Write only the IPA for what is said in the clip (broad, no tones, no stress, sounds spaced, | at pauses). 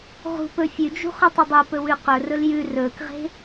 ʁ ṳ p ɵ fʲ ʉ d͡ʒ ṳ χ ɵ tˤ ɵ dˤ u p ɵ w ʉ q ɵ r ɵ l j ʉ r ɵː k ʁ e̤